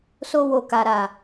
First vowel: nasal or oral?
oral